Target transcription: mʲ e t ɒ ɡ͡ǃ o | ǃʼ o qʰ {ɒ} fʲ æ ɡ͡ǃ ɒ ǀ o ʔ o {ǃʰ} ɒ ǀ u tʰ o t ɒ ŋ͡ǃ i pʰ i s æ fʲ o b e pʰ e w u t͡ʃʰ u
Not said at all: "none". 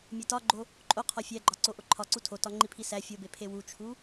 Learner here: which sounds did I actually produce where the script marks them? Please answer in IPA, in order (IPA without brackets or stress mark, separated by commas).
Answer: ɒ, ǃʰ